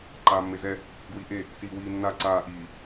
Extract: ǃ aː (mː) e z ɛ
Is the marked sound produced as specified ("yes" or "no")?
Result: yes